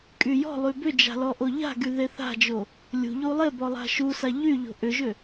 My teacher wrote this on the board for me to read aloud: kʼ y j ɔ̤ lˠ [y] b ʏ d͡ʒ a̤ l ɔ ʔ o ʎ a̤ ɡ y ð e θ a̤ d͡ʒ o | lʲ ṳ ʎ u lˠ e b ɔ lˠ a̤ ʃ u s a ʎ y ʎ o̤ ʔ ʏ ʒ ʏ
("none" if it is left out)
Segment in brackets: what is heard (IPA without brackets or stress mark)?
y